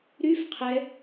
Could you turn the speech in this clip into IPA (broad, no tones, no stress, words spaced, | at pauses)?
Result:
ɾyf qʰɛ